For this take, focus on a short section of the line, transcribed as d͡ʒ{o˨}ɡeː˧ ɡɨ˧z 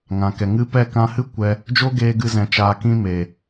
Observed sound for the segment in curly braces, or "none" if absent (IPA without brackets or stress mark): o˦